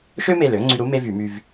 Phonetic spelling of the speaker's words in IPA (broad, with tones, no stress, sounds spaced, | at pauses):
ʃ ø˥ m e˧˩ l ø˧˥ ŋ͡ǀ y˧ ɾ u˧˥ m e˥ v y˧˩˧ m y˧ v